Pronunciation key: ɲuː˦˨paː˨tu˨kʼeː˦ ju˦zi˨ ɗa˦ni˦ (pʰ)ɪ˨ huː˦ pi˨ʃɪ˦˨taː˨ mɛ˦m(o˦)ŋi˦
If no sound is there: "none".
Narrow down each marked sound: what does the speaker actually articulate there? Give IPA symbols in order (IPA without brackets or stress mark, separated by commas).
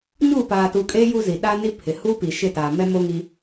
pʰ, o˦